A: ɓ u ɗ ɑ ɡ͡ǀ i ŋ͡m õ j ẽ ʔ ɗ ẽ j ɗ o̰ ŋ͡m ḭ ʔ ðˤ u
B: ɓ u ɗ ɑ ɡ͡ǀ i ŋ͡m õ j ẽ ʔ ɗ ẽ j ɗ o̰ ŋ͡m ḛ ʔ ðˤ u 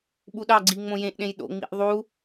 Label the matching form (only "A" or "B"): A